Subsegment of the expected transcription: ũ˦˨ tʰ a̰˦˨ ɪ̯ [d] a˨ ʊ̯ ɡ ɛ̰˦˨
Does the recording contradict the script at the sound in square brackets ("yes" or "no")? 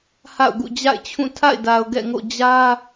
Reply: no